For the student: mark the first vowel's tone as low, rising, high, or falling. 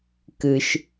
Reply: low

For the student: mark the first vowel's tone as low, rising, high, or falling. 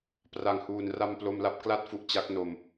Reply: low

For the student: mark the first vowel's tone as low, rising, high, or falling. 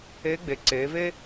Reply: rising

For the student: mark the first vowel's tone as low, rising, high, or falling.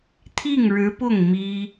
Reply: falling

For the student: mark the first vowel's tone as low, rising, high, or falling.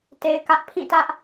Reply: low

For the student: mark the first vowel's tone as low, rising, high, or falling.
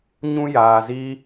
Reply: high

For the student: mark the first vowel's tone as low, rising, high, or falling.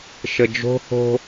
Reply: low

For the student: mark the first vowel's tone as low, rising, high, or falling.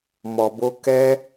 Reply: low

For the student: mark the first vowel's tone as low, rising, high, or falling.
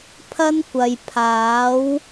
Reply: high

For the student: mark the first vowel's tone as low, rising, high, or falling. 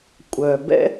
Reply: low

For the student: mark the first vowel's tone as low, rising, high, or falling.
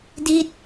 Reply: falling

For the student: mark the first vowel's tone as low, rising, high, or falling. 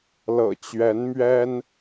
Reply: low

